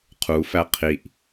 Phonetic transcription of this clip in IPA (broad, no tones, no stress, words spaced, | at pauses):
qʰufæ qʰiʔ